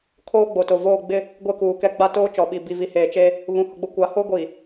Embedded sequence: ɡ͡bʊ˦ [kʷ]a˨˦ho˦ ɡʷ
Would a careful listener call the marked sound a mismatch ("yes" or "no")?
no